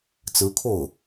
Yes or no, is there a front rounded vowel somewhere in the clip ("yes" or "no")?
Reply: no